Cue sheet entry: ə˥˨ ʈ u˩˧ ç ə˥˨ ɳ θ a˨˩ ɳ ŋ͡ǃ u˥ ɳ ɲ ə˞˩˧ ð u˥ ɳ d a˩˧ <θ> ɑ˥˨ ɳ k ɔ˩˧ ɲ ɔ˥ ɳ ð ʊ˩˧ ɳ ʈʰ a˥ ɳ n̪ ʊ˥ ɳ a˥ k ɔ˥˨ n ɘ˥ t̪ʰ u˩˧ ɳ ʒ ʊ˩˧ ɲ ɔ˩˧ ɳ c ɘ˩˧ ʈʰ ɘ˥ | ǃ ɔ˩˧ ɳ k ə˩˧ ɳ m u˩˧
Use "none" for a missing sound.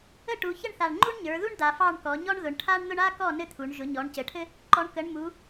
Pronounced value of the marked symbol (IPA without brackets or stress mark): f